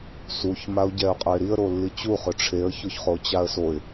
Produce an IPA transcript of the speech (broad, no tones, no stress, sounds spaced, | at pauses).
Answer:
s u ç m a ʊ̯ ɟ ɛ ʊ̯ qʼ ʊ ɪ̯ ɾ i ə̯ ɾ o lː i t͡ɕ u χ ʊ ʈ͡ʂʰ e ə̯ ç ʊ ç χ o t͡ɕ a ə̯ s o ɪ̯